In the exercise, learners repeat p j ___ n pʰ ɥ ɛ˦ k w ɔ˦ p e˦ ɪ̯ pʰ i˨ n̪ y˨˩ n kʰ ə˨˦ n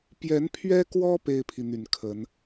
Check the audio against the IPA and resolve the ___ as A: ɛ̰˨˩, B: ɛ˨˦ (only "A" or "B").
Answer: B